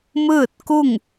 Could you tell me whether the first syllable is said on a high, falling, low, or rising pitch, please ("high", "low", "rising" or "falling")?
falling